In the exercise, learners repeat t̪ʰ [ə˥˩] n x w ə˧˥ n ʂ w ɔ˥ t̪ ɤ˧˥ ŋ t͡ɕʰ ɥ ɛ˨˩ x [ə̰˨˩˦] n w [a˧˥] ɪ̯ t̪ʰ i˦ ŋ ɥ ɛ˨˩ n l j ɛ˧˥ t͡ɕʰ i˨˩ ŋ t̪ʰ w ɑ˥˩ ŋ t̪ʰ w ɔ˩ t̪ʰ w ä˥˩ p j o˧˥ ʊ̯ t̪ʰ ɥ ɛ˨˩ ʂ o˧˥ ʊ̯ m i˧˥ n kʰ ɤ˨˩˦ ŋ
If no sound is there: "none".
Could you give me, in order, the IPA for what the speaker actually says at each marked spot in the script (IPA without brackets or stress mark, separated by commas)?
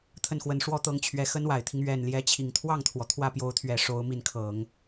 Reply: ə˥˩, ə˥, a˨˩